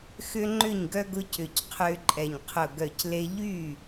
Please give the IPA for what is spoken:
x ʏ˦ ŋ͡ǃ ʏ˥˩ ɲ ɡ œ˦ ɡ ʊ˦ c ʏ˧˩ c qʰ ʏː˦ ǃʼ ɛ˧˩ ɲ qʰ ʊ˧˩ ɡ œ˧˩ c l e˦ ʎ yː˥˩

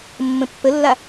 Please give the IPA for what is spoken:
mː ə̃ pː ə lː a

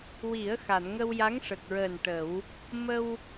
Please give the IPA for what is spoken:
w i˨˩˦ ə̯ x a˨˩˨ n ŋ ə˧ w j a˧˥ ŋ ʂ ə˨˩ k̚ ɹ əː˨˩ n ʈ ə˨˩˦ w | m ə˧ w

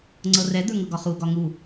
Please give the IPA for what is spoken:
ŋ͡ǀ ɤ r ɛ d̪ ə˞ ŋ ɤ ɡ ɒ χ u ɡ ɒ ŋ u

